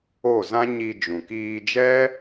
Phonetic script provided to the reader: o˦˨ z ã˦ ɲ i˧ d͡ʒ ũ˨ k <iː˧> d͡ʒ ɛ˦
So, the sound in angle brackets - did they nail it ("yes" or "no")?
yes